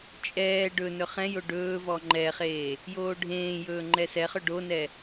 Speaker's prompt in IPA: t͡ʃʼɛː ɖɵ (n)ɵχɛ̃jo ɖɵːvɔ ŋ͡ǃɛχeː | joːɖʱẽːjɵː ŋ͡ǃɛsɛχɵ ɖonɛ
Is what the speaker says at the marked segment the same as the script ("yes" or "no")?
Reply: yes